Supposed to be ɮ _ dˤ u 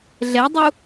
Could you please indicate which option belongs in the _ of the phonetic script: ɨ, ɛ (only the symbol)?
ɛ